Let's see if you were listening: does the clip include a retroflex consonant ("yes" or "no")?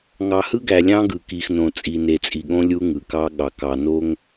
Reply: no